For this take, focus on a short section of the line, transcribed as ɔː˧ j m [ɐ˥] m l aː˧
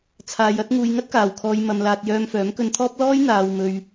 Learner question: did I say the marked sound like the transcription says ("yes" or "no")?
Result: no